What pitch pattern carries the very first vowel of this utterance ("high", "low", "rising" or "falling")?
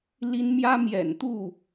high